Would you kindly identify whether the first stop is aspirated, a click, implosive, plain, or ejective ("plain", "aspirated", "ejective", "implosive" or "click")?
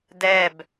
plain